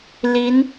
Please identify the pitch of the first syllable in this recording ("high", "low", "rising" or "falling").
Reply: rising